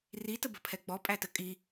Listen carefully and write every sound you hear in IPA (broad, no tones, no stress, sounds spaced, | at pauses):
r i t ə b ə̤ pʰ ɛ ɡ͡b ɔ pʼ æ t ə kʼ i